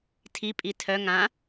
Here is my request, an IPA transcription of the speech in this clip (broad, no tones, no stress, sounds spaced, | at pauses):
tʰ i pʼ i tʰ œ ŋ ã